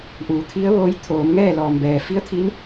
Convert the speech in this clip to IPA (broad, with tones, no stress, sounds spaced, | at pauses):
ʔ uː˩˧ t̪ʰ i˧˥ ə̯ ʋ oː˧˥ j t̪ʰ oː˩˧ m ŋ ɛː˥˨ l ɔː˩ m b ɛː˩ f i˧˥ ə̯ t̪ʰ i˧˥ n